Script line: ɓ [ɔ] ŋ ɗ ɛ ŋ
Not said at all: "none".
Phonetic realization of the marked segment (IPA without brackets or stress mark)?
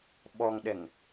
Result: ɔ